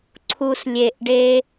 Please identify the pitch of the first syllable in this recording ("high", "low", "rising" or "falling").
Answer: low